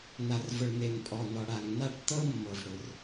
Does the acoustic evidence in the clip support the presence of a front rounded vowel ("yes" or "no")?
no